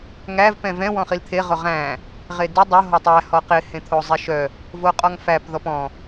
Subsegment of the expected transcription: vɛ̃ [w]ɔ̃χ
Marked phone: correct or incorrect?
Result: correct